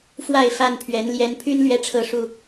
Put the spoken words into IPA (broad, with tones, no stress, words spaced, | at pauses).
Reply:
fwa˥˨ɪ̯fa˥˨npʰɥɛ˨˦n ljɛ˨˦npʰy˦n lɥɛ˦ʈ͡ʂʰɤ˥˨ʂu˥˨